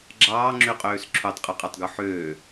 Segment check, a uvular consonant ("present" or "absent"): present